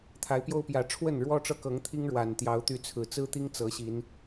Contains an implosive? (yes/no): no